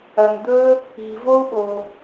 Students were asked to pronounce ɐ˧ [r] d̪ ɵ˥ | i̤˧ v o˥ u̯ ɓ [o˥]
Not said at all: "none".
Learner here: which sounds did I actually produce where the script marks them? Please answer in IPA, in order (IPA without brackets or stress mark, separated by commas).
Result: n, o˧